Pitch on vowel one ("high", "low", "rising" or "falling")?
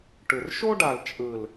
low